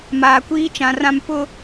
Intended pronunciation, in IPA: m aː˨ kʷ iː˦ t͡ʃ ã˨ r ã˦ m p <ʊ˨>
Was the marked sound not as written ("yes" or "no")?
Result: yes